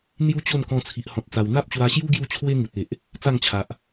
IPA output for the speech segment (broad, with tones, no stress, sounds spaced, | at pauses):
n̪ j u˦ t͡ɕ o˥˧ n k ɔ̃˧ t͡sʰ i˨ ʔ h ɔ̃˨ t̚ t͡s a˨˩ w n̪ a˦ p̚ t͡ɕ w a˧ ɕ j u˦ ɡ j u˥˧ t͡ɕʰ w e˦ ŋ u˨ t̚ e˨ ʔ | t͡s a˥˧ ŋ t͡ɕʰ a˨ ʔ